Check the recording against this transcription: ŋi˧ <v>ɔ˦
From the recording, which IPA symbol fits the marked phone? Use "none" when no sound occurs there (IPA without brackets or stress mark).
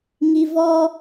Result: v